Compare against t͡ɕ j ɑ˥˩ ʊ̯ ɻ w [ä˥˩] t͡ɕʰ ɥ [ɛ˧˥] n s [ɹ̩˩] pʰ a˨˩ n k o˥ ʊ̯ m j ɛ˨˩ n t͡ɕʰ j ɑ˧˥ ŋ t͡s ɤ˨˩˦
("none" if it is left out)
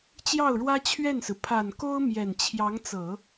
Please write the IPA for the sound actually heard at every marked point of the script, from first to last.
ä˥, ɛ˥˩, ɹ̩˩

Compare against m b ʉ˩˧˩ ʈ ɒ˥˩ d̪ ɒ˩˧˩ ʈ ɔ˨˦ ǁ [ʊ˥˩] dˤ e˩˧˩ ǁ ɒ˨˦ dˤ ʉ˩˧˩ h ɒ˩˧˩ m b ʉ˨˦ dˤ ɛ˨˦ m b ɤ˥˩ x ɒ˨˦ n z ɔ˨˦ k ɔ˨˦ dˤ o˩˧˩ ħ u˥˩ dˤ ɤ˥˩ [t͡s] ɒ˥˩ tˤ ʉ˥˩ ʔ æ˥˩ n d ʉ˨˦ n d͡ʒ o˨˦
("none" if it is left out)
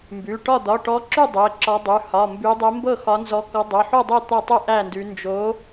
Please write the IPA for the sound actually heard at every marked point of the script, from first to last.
ʉ˥˩, t̪

